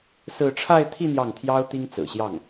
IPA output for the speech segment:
sɹ̩˥˧ ʈ͡ʂʰa˥˧ɪ̯t̪ʰi˥˧ n̪jɑ˥˩ŋt̪ʰjɑ˥ʊ̯ t̪i˥ŋt͡sɹ̩˨˩ɕjɑ˥˩ŋ

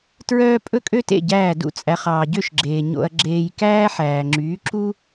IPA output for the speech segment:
tɹœː˥ pʼɵ˥kʼø˥tḛ˥˩ ɟæː˥˩dṵ˥t͡sʼæ˩˥χ ɑː˩ɟø˥˩ʃɡ͡ǁeː˩ ɲo̰˧ɐ̯ɡ͡ǁeː˧j kæː˥ħæː˩ŋ͡ǁyː˩˥ ǁu˥

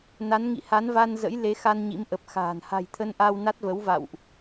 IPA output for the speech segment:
na˨˦nŋḭ˧˨ha˨˦nva˧n zə̰˧˥j le˨˦xa˧n ɲḭ˧˥mʔə˨˩p̚xa̤ː˨˩n ha̤˨˩jt̪ʰə˧nʔa˧w na˦˥t̚və˨˦wva̰˧˨wʔ

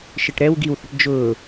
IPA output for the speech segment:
ʃɪʈɾɛw ɡiwθəʈ d͡ʒʊː

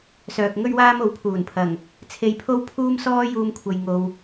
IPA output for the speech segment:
sœː˨k̚ŋɵ˥ɥwaː˥m o˨˧wpʰuː˨˩npʰɐ˨˩ŋ | t͡sʰe˧jpʰo˥w pʰuː˥msɔː˥ juː˧mkʷʰɐ˨j ŋo˨w

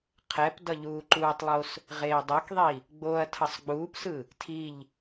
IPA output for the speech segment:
qʰɛp dʌʎuːǃuːtˤlˠos | ʁeːdˤɛkðˤi | ɡ͡boɐ̯ tʰʌsˤɡ͡buːpsɯ | tʰiʎ

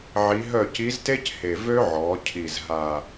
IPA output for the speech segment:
ʕi˧˥ ɦœ˦˨ci˧˥zte˥c he˨˩vø˥ ʕɔ˩˧cʰi˨˩z ɦa˨˩

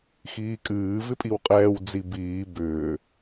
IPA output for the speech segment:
xiːkʼɨː vɪpʼiwqʼɛːw d͡zibiː bʏː

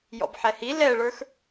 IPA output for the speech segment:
jɔ̰bħɛhi lɛɭə˞x

